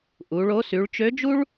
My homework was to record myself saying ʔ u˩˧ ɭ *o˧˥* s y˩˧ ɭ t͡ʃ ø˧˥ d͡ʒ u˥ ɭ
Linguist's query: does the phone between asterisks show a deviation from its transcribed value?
no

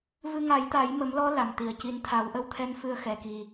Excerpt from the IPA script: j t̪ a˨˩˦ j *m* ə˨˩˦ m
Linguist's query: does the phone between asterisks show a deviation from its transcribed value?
no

